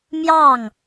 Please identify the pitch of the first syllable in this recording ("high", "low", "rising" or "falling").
falling